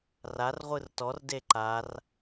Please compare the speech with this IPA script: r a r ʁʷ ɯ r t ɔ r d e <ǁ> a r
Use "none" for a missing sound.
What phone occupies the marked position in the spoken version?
ǃ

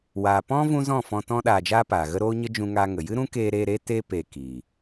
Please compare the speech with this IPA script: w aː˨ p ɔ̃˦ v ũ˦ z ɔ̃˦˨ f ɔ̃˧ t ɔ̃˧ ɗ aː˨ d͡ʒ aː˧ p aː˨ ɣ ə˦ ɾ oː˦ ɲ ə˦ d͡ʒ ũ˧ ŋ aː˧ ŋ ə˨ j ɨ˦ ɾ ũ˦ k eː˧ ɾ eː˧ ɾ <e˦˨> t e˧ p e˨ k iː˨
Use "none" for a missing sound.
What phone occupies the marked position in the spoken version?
e˦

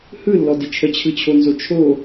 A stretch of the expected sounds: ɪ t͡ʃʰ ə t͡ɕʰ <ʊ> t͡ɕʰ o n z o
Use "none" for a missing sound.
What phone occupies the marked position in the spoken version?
ɯ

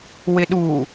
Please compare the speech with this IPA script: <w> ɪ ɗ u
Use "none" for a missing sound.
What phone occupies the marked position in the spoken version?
w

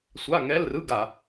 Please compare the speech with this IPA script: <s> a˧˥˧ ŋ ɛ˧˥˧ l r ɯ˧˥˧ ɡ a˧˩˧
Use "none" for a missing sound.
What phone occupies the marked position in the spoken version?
sʷ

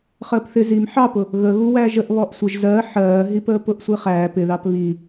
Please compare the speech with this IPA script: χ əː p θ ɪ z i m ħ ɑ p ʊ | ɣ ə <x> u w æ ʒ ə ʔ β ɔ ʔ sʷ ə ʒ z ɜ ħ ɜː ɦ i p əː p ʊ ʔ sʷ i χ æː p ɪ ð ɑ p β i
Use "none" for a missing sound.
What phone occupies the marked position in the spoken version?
ɣ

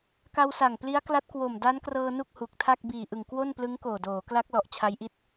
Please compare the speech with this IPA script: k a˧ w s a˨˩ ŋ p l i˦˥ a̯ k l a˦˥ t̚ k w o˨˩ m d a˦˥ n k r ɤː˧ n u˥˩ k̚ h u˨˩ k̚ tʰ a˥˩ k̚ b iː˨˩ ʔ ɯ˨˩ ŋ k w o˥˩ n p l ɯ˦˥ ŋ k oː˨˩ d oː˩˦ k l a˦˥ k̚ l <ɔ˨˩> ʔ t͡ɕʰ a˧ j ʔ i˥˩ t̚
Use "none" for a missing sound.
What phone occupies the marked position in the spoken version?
ɔ˨˩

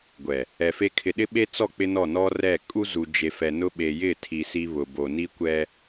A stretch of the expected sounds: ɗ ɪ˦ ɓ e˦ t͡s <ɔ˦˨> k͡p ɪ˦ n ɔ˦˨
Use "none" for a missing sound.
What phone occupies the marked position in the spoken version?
ɔ˦˨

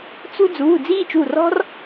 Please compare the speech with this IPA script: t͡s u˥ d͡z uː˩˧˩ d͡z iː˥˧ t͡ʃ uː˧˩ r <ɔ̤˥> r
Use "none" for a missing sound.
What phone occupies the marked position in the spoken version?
ɔ̤˥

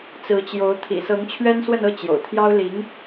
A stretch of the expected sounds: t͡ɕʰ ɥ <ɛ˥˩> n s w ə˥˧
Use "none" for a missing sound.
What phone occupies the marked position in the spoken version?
ɛ˥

